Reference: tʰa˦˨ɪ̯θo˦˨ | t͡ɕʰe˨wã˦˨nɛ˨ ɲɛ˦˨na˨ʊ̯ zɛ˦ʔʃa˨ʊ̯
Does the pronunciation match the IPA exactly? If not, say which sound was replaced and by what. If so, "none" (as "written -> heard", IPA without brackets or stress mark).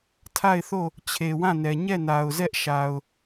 none